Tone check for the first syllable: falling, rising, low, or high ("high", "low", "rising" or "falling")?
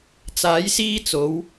rising